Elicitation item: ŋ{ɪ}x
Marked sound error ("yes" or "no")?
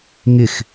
no